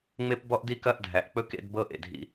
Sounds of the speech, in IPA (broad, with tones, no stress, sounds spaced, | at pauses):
ŋ͡m e˦ p b ɔ˦ ʔ d i˦ k ɐ˦ ʔ dʱ æ˨ ʔ k͡p ɵ˦ k ḛ˦ d b ɤ˦ ʔ ḛ˨ dʱ ḭ˦